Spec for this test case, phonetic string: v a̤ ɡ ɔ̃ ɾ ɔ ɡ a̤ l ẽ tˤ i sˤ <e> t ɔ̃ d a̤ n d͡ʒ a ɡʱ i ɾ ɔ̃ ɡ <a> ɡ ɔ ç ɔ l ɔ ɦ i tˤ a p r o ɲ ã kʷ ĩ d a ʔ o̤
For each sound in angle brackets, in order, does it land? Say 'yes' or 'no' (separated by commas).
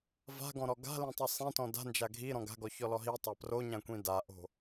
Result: no, no